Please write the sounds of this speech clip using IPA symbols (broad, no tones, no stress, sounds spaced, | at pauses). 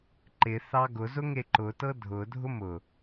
ǃ ɪ θ ɑ ɡ ʊ z ʊ ŋ e ǃ ʊ t ɤ dʱ ʊ dʱ ʊ m ʊ